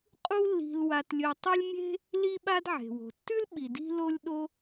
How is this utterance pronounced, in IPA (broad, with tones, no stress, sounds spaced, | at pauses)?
qʼ u˥ lː i̤˧ l w a˧ t lʲ ɵ˧ tˤ ʉ˥ lʲ mʲ e̤˥ | l i˥ ɓ a˥ d ʕ e̤˩ w o̤˩ tː ʉ˥ l ɓ i˩ d i̤˥ l o˥ lʲ ɗ o˥